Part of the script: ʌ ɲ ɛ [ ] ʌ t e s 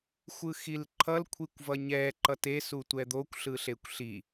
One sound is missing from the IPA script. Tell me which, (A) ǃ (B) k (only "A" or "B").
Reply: A